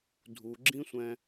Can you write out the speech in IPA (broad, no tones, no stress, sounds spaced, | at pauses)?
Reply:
dʱ u ɡ͡ǁ ĩ sʷ ɛ̃